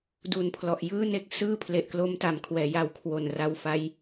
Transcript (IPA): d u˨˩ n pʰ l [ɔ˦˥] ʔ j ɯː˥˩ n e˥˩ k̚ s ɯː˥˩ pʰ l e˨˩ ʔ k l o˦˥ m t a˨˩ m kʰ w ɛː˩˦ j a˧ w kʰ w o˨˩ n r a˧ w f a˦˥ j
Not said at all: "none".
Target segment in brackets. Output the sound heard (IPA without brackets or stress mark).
ɔ˨˩